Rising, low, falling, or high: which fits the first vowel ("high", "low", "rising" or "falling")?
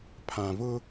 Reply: low